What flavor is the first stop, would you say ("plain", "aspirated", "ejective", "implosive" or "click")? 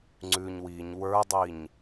click